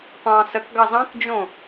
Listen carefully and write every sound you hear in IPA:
qʷ ɑ̃ s ə k ɡ ɑ z ɑ̃ k d͡ʒ õ

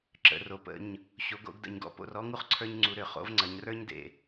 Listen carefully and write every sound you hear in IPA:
ǁ ə̰˩˧˩ r o˩˥ p ə̰˩˧˩ ɲ | ɕ o˩˥ ɡ o̰˩˥ ɡ d ə̰˧˩˧ ɲ ɡ ɔ̰˩˥ p o̰˩˧ r ɔ˦ ŋ u˦ χ ǀʰ ə˞˦ ɲ ŋ͡ǀ u˩˧ ɾ ʏ˧˩˧ χ o̰˩˥ v ŋ͡ǀ ɐ˩˧ ɲ r ə˞˦ ɲ d ḛ˩

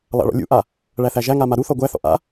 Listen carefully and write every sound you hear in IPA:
lˠ a̰ ɭ ɔ̰ lʲ ṵ ʔ a | ɭ æ θ æ ʒ æ ŋ a m a ɾ u θ ɔ ɡʷ æ θ ɔ̰ ʔ a̰

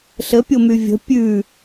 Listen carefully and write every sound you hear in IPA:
ɬ ə pʲ o m y vʲ ə̤ pʲ ʉ

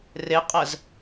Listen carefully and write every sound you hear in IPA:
r e qʼ ɜ z

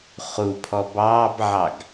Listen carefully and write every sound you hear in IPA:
χ u pʰ ɔ b ɑː b ʕ ɑ ɡ

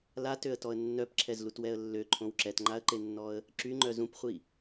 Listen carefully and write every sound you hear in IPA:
l a t ø ə̯ t ɔ ə̯ nː œ p ǁʰ ɛ z l u t w ɛ ə̯ lː ø ǃʰ õ w ǁ ɛ t ŋ͡ǃ a ə̯ ǃ e nː ɔ ə̯ | ǁ y ŋ͡ǃ œ z ũ p χʷ i

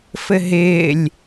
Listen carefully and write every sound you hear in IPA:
f ɘ ɦ ɪː lʲ

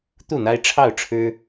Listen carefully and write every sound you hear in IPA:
t̪ u˥˨ n̪ a˦ ɪ̯ ʈ͡ʂʰ ɑ˥˨ ʊ̯ ʈ͡ʂʰ ɻ̩˦

